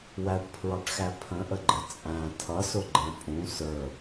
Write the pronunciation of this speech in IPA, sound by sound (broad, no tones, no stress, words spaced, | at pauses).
wæʈpʰɹɑʈxæ pʰə̃ʔəɡ͡ǃə t͡sʼæ̃ tʰʌsʊɡ͡ǃɛ̃ pʼũ sə˞